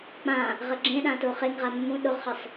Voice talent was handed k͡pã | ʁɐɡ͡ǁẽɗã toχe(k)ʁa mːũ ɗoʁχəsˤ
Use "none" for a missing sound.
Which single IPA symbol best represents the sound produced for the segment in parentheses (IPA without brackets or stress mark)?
ŋ